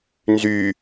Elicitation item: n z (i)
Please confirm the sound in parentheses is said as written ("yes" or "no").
no